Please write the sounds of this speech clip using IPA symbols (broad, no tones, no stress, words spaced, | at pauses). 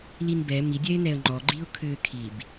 linbɛ mi dʲɛɪ̯nɛə̯ŋ͡ǃɔ ɡ͡ǃiʊ̯kʰʏ kʰib